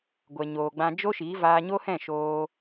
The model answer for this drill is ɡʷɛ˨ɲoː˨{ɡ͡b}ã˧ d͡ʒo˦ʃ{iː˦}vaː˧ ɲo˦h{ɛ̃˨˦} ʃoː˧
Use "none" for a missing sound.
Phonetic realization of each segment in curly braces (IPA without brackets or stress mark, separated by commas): ɡ͡b, iː˨˦, ɛ̃˦˨